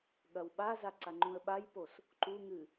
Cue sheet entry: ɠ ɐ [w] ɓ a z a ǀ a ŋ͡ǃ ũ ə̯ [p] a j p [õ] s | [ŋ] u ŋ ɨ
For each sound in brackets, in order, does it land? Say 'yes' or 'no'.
yes, no, no, no

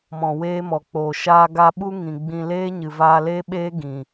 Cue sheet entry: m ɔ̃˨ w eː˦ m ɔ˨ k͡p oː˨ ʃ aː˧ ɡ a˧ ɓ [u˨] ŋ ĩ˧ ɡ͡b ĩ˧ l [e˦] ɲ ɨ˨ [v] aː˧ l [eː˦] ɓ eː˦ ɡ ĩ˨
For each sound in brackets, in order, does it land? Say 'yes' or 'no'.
no, no, yes, yes

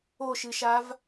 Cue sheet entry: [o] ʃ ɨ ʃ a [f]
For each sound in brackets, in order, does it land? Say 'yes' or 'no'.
yes, no

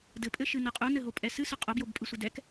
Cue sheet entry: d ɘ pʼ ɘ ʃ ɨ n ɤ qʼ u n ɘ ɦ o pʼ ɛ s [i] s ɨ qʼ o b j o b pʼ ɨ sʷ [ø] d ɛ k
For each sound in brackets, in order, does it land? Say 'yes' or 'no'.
no, no

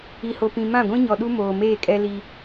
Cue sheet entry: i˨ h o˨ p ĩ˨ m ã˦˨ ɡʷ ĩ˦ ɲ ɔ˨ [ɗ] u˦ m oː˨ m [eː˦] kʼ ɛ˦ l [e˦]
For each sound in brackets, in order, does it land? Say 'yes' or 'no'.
yes, no, no

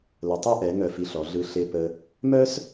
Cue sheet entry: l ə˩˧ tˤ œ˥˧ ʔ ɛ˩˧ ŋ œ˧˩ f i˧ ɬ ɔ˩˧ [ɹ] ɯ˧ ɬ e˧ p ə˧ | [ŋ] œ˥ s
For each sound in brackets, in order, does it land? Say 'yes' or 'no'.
no, no

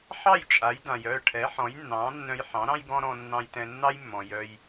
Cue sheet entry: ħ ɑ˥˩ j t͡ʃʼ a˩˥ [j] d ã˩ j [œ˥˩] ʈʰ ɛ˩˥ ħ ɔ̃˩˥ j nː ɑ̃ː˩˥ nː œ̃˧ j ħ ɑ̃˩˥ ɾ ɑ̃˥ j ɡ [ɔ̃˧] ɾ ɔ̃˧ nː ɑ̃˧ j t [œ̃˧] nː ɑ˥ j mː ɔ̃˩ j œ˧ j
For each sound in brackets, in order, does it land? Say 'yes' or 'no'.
yes, yes, no, no

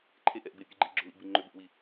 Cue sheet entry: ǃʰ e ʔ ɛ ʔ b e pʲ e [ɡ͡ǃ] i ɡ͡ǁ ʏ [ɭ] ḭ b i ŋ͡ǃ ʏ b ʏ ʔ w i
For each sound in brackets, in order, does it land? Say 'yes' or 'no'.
yes, no

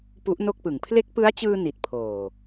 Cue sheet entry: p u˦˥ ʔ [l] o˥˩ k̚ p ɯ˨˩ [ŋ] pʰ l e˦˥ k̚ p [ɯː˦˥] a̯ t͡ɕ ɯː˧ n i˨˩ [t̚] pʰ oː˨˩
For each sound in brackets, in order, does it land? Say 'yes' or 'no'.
no, yes, no, yes

